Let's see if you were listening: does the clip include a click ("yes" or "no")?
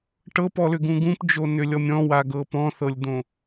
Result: no